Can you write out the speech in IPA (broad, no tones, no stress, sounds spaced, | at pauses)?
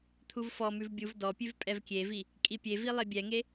t̪ʰ u v f ɔ m ʉ v bʲ u v d ɔ pʲ ʉ v pʼ ɛ v kʲ e v i | kʼ i pʲ e v i lˠ e bʲ ɛ ŋ e